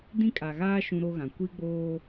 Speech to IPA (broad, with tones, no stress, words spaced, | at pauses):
dĩ˦kʼa˨ɣaː˦ ʃũ˦ɾo˦ɣã˨ kʷi˦ɡ͡boː˦